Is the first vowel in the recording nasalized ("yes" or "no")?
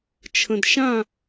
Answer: yes